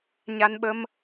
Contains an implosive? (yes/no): yes